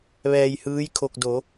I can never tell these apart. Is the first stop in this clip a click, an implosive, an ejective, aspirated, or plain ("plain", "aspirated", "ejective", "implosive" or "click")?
aspirated